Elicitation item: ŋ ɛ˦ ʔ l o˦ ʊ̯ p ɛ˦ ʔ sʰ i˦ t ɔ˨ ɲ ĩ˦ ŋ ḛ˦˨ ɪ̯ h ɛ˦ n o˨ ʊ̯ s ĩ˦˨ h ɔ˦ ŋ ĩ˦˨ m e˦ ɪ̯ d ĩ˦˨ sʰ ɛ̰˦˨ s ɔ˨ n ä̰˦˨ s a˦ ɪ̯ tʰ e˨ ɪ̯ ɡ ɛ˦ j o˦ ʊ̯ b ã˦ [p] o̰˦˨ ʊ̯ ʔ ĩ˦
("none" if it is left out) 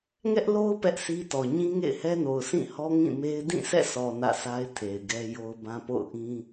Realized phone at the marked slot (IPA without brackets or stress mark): p